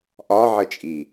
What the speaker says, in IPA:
ʔ ɒ ʕ ə t͡ʃʼ i

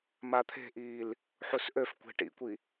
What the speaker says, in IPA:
m a t̪ʰ e̤ ʔ iː l | ħ u s ʔ ø f kʷ e̤ ʈ ḭ kʷ i

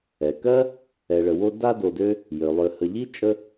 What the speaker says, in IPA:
ɛ˩ k ɜ˥ | ɛ˨ ɭ ə˨ w o˦ d a˦ d o˨ d ø˦ | j ø˩ lˠ ø˨ h ə˨ ʎ i˥ t͡ʃʼ ə˦

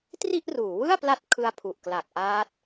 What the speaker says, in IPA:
t r i˥˩ ʔ r uː˩˦ w ɯ˥˩ a̯ p l a˦˥ t̚ kʰ ɯ˦˥ a̯ pʰ u˨˩ ʔ k l a˨˩ k̚ ʔ aː˦˥ t̚

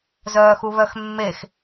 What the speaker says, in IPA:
z œː x u β œ x mː e x

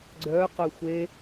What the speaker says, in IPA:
ɡ͡ǀ œ q œ xʷ e

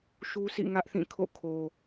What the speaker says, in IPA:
ʃ u˦ s ḭ˦˨ ŋ ä˦ ʔ θ ĩ˦˨ kʰ o̰˦˨ kʰ o˨

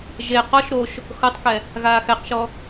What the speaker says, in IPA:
ʒ e q ɔ ʃ ɾ o ʃ | x ɤ tˤ k ɛ | ɣ aː x ɛ q ʃ ɔ

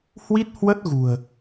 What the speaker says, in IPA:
h w i˦˥ t̚ h w ə˦˥ t̚ ɣ ṳ˨˩ ə̯

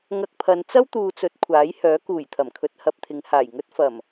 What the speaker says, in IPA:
ŋ ɐ˧ k̚ pʰ ɐ˨˧ n t͡s ɐ˥ w t̪ uː˨ t͡s ɵ˨ t̚ kʷʰ aː˨˥ j h œː˨˥ k uː˨˩ j t̪ʰ ɐ˨˩ m kʰ ɵ˧ t̚ h ɐ˧ p̚ t̪ʰ ɪ˨˧ ŋ h aː˨˩ j ŋ ɵ˥ t̚ f ɐ˨˩ m

